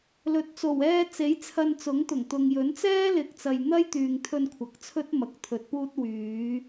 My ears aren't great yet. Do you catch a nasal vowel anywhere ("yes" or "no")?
no